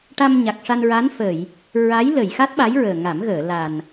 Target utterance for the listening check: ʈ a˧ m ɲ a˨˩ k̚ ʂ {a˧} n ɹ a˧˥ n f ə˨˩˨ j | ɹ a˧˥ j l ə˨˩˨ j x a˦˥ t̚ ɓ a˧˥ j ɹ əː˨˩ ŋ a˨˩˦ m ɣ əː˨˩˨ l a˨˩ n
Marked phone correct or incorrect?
correct